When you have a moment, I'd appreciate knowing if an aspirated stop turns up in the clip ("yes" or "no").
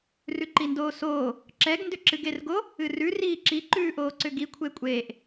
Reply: yes